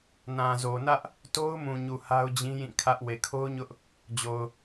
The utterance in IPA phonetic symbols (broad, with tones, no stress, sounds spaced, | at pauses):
n ã˨ z o˨ n ä˦ ʔ | t o˦ ʊ̯ m ũ˨ ɲ u˨ h a˦ ʊ̯ d͡ʑ ĩ˦ j ĩ˦˨ kʰ ä˦ ʔ w e˨ kʰ o˦ ʊ̯ ɲ ʊ˦ ʔ | d͡ʑ o˨ ʊ̯